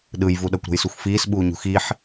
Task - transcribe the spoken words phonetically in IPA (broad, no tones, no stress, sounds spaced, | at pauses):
ɗ ɯ j v u ɗ ʌ kʷ ɾ o̤ j s u xʷ f iː s ɓ uː ɲ ṳ x i ħ